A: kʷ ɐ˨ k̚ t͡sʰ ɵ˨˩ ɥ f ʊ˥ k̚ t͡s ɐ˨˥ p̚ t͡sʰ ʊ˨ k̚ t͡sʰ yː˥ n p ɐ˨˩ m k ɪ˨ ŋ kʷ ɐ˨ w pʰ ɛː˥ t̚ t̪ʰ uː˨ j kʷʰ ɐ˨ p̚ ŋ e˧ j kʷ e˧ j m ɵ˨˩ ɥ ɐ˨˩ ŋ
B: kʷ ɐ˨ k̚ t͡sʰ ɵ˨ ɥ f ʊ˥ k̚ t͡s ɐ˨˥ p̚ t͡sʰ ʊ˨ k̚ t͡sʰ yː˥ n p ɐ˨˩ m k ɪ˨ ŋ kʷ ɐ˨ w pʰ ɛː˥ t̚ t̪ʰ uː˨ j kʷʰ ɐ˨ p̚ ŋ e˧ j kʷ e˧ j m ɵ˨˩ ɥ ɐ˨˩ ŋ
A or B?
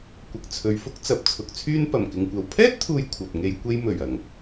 B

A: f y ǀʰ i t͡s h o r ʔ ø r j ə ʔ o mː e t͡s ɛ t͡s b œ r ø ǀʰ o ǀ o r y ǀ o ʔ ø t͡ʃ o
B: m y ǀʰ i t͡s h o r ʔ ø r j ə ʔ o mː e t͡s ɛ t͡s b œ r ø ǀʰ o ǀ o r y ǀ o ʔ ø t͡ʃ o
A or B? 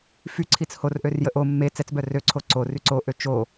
A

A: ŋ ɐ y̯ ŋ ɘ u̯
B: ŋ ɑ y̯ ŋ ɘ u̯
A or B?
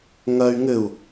A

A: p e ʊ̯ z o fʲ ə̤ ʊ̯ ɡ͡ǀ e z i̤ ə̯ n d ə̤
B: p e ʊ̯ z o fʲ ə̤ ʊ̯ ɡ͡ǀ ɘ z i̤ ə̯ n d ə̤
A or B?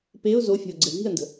B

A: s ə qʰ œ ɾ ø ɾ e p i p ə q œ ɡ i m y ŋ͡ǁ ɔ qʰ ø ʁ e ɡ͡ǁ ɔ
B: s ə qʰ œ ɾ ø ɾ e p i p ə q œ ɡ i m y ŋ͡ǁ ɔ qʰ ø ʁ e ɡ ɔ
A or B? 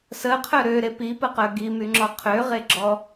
A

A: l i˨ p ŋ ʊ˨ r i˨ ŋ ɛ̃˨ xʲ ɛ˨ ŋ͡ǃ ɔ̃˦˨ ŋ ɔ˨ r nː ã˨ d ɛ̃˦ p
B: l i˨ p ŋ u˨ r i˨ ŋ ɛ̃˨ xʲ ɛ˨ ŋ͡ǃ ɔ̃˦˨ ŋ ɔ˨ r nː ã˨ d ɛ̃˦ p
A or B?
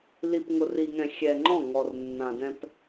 A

